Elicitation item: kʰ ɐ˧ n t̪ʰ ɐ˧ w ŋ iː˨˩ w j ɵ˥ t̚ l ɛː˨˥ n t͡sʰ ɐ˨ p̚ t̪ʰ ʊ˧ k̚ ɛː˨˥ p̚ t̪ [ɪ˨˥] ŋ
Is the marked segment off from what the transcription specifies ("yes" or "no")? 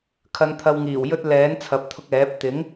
no